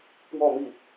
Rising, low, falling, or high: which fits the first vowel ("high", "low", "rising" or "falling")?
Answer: falling